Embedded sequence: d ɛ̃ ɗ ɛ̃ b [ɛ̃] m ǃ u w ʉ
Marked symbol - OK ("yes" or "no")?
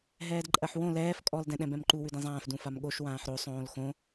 yes